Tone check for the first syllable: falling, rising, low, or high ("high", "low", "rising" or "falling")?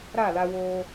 falling